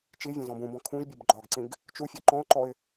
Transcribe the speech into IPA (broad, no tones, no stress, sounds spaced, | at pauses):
t͡ʃ i vʲ ɔ̃ z ɔ̃ b ũ b ɔ̃ kʰ ũ ʒ bʲ ʊ b ɡ͡ǃ ɒ ɡ ǀ ĩ ɡ | t͡ʃ u fʲ ɤ ǃ ɔ̃ ʊ̯ ǃ ɔ ɪ̯